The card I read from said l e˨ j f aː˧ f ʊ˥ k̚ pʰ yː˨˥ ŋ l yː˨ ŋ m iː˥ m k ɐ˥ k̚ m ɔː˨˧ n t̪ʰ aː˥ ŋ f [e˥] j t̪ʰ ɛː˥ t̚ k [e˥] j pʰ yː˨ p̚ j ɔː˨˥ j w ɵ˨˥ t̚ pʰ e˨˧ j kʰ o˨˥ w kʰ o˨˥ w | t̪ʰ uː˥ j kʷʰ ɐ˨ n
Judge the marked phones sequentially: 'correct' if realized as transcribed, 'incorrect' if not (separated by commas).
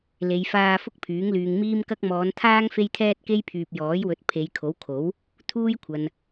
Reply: correct, correct